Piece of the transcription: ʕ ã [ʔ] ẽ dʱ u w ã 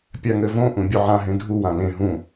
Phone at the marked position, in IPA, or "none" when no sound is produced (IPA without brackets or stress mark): ɦ